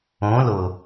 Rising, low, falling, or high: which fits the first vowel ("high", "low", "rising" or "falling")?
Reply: rising